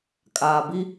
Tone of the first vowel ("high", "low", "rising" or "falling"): low